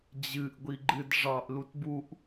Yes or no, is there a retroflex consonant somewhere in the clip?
yes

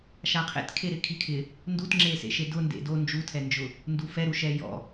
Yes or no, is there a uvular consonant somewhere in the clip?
yes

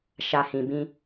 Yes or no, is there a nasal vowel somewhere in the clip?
yes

